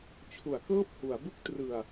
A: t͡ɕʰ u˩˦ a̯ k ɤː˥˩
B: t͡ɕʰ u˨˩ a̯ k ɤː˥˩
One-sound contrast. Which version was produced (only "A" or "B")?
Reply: A